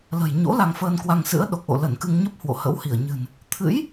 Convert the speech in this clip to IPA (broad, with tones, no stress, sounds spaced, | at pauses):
l ə̤˨˩ j ɲ o̰˧˥ l a˧ ŋ f əː˧ n k w a˧ ŋ s ɨ̰˧˥ ə̯ ɗ o˨˩ k̚ ʔ o̰˧˨ l ə˧˩ n k ɨ˧ ŋ ɲ ə˦˥ p̚ h w o̰˧˨ h ə̰˧˥ w h i˧˩ ə̯ ɲ ɨ̤˨˩ n | t̪ʰ ɨ̰˧˥ j